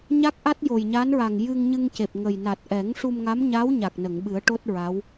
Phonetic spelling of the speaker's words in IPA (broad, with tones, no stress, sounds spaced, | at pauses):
ɲ a˦˥ k̚ ʔ a˦˥ t̚ j o˨˩ j ɲ a˧˥ n ɹ a˨˩ ŋ j ɨ˧ ŋ ɲ ɨ˧ ŋ c e˨˩ p̚ ŋ ə˨˩ j n a˨˩ t̚ ʔ ɛ˨˩˦ ŋ ʂ u˧ m ŋ a˧˥ m ɲ aː˧˥ w ɲ a˨˩ k̚ n ə˨˩˨ ŋ ɓ ɨ˨˩˦ ə̯ ʈ o˦˥ t̚ ɹ a˧˥ w